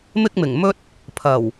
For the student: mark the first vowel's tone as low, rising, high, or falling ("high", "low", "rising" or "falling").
high